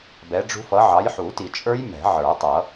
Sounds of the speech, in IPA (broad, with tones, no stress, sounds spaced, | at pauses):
b ɛ˨˦ ɖ͡ʐ ṳ˦˥ f ʌ˨˦ ʕ ɑ˨˦ j ħ u˨˩˦ t i˨˩˦ t͡ʃʼ ə˞˦˥ j m ɛ̤˨˩˦ ʕ ə˞˨˩˦ tˤ ʌ˨˩˦